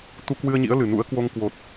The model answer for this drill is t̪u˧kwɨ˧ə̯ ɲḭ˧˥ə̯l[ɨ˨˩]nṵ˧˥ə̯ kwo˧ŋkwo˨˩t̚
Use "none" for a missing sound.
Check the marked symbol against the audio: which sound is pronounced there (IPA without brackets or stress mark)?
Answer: ɨ˨˩